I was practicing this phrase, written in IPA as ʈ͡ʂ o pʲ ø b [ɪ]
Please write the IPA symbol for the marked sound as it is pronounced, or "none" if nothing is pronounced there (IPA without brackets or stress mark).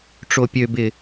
ɪ